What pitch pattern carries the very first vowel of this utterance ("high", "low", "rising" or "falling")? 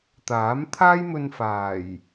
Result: rising